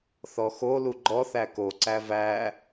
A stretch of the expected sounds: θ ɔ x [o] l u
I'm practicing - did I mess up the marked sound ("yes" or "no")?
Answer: no